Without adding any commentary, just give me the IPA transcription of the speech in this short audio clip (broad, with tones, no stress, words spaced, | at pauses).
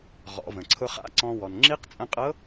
ʁɔ̰˩˧və̃˩ ǀʰʊ˧χa̰˧˥ǀɔ̃˧ wɔ˩nŋ͡ǁi˧˥qt͡sʼə̃˧qʼɤ˧˥